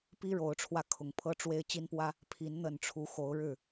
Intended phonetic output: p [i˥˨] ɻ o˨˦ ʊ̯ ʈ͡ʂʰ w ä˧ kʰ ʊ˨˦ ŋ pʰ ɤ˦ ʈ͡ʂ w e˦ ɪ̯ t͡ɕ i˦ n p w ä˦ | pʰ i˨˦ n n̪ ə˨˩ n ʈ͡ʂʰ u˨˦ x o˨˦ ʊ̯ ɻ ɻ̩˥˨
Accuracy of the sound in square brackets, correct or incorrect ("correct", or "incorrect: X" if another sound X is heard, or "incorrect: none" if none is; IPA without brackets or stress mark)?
incorrect: i˦